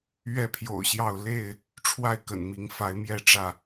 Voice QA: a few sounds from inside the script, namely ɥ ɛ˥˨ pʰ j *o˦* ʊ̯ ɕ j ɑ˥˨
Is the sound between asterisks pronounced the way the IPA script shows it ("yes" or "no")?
no